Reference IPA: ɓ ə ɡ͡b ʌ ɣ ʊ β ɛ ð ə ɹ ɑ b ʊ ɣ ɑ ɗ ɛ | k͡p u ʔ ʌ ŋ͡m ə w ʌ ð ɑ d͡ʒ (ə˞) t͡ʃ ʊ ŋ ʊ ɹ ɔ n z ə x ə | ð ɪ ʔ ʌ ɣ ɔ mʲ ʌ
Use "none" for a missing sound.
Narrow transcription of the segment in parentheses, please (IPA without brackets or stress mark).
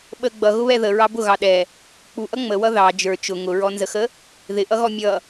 ə˞